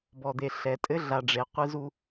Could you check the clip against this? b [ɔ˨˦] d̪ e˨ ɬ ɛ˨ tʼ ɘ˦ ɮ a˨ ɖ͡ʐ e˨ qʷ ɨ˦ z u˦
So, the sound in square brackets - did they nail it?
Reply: no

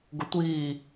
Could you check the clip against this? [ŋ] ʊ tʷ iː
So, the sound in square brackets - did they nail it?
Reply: no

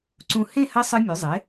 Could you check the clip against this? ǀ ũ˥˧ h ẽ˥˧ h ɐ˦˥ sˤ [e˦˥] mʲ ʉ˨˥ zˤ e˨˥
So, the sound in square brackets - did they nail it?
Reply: no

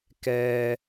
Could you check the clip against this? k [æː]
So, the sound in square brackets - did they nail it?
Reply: no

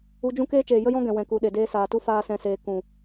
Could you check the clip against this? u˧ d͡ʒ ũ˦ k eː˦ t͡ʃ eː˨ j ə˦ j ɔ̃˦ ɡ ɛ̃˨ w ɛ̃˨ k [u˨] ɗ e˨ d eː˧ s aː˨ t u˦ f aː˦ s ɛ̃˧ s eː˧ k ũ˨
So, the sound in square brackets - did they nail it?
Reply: yes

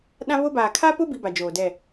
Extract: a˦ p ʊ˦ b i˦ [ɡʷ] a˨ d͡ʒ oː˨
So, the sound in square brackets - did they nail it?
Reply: no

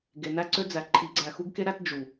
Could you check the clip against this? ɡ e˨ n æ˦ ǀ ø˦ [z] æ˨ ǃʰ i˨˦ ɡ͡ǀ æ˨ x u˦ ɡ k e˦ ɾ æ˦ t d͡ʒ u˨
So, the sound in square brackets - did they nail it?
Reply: no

